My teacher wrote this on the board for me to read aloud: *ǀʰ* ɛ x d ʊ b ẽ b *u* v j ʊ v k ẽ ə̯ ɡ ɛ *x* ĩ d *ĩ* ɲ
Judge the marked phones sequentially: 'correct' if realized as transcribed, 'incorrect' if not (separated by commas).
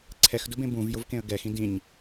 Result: correct, incorrect, correct, correct